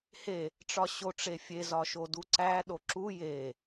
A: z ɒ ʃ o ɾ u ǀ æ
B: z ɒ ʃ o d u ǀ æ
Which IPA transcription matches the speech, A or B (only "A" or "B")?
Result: B